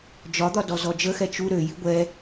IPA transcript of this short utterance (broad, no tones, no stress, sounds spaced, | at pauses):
d͡ʒ ɒ d̪ ɒ d ɔ z ɔ d͡ʒ ə x ɛ t͡ʃ u ɾ ø j i ɡʷ ɛ